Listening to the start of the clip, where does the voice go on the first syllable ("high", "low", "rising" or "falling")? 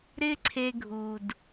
high